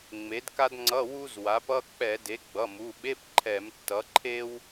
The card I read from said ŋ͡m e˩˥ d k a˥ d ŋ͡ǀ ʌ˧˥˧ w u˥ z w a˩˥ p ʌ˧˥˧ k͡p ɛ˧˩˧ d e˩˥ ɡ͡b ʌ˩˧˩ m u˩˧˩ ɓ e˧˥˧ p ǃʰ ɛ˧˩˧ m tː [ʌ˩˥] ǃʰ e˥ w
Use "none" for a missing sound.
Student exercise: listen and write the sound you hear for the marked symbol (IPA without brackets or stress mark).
ʌ˩˥